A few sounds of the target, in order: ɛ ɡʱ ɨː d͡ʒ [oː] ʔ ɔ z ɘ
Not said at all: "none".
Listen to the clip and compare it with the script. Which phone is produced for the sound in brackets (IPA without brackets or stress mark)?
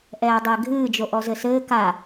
o